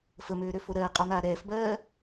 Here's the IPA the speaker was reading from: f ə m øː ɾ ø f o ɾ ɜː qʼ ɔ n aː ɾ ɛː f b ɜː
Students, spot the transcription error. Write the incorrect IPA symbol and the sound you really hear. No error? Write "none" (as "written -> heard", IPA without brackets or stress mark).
none